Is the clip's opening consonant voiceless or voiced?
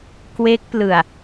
voiceless